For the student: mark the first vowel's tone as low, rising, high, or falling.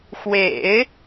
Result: low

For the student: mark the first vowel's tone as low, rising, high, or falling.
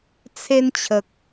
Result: high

